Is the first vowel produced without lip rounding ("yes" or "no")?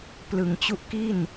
yes